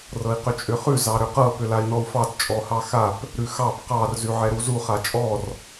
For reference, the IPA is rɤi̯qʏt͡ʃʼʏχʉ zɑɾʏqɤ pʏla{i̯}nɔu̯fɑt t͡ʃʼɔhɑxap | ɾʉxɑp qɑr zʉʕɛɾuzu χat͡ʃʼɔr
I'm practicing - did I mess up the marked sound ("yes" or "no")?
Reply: no